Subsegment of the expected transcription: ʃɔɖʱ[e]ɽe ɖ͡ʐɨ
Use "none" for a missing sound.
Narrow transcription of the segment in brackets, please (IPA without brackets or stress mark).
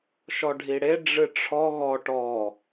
i